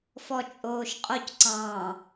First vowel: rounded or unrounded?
rounded